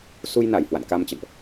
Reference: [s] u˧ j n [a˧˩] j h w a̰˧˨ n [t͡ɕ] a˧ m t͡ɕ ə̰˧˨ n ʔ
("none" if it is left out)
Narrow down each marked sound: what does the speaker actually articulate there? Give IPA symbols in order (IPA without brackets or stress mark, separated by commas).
s, a˧˩, k